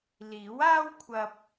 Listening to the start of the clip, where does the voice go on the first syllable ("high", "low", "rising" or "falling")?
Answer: rising